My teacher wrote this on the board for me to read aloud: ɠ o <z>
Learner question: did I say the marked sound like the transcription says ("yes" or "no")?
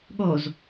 yes